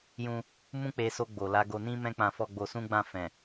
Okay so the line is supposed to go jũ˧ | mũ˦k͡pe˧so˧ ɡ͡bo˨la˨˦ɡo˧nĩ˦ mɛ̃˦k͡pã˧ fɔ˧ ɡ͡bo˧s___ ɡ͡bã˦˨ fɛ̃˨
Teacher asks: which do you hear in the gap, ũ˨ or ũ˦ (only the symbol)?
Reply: ũ˦